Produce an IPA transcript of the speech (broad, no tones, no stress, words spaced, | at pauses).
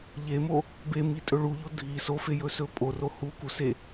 ʎemo | bemitʼɵ ɭuʎo dʱi sofejɵsɵ pʼoro hukuse